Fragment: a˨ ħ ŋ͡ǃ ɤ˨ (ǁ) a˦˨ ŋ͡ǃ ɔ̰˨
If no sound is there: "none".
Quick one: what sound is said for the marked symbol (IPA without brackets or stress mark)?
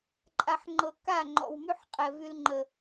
k